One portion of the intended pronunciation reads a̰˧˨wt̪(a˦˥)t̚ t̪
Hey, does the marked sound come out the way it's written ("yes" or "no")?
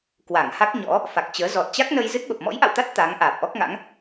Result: yes